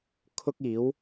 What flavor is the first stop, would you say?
aspirated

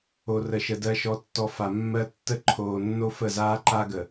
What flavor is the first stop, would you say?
plain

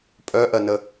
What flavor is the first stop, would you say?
ejective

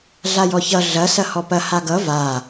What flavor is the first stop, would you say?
plain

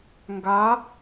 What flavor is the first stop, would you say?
plain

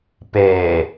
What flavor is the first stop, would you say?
plain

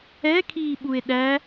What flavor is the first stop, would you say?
aspirated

